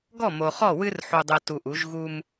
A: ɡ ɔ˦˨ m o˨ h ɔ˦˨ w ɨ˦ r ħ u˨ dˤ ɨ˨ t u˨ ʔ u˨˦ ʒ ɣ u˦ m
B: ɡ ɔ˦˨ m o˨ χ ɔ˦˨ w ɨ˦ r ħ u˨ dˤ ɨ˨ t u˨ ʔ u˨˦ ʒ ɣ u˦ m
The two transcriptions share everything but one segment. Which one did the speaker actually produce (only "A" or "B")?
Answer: B